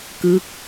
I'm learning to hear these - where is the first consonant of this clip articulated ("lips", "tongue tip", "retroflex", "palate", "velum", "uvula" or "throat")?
velum